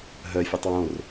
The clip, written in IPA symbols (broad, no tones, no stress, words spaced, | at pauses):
ɦœfʲotˤ wõr